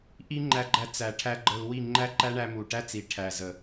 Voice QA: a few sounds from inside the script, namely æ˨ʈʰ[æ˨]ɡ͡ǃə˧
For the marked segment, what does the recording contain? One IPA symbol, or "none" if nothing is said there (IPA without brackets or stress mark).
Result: æ˦